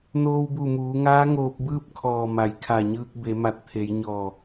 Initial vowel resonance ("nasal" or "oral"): oral